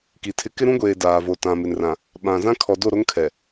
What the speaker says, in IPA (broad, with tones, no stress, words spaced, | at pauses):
ki˨tʰɪ˦ kɪ˦ɾũ˦ɡʷeː˨ daː˨vo˨ tã˨ mɪ˨nrã˨ | ɓã˨ zã˦kʰɔ˨do˦˨ɾo˦ŋ kʰɛ˨